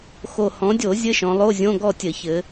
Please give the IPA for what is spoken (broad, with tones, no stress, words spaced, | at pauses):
xo˨˩ hɔ̃˩˧dʲo˧˩˧ zʲɘ˧˥˧ʃɔ̃˩˧lˠo˧˥˧zʲõ˧˥˧ ɡɔ˥˨tʲɘ˧˩˧çɘ˩˧